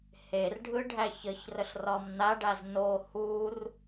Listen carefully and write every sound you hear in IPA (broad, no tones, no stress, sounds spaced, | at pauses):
h e r ɖʱ ɯ ɖʱ æ ç ə ç r ə ɬ r ɒ m n a ɖ a z n o h u r